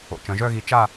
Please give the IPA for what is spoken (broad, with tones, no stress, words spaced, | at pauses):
o̰˩˧t͡ʃœ̃˩˧ʒœ˥˧ɣi˧ t͡ʃa˥˧